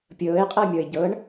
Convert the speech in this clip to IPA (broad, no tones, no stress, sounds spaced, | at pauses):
pʲ ɤː ɪ̯ qʼ ɤ mʲ ɔ ɪ̯ ɟ ɤ ɳ